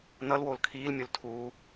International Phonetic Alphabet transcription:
nʌlwoːl kʰiːlmʲol tʰuː

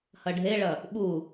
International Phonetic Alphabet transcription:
hɐɖʱeɭɐ | ɓu

